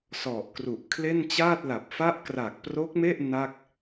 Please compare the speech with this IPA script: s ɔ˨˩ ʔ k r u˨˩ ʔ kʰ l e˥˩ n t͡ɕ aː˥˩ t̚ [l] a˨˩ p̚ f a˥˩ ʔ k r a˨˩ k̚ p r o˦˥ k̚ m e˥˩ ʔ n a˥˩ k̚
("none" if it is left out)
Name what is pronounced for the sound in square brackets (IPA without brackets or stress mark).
l